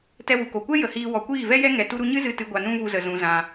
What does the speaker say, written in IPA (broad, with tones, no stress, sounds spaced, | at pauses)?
t ɛ˧ w u˨ k o˨ kʷ ɛ˦ j ə˨ h iː˧ w ɔ˨ kʷ iː˦˨ v ɛ˦ j ɛ˦ ŋ ɛ˨ t u˦ ɾ u˦ ɲ ɨ˦ z ɨ˧ t ɨ˨ ɡʷ a˨ n ũ˦ v u˧ z ə˨ z ũ˨ z ã˧